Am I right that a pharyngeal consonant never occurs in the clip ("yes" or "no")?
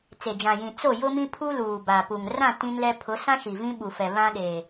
yes